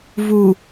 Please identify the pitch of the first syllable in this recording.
low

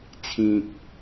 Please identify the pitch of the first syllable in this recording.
low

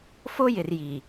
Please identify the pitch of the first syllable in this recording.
high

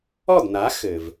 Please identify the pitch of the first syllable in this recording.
falling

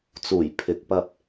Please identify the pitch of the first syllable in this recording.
low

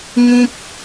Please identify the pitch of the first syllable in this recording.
high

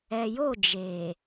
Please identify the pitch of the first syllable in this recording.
low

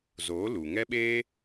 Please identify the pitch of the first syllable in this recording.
rising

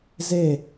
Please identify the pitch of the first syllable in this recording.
falling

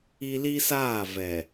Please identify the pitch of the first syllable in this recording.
high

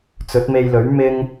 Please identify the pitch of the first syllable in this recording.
rising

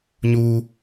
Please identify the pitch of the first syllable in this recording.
high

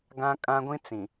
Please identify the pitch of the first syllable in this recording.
high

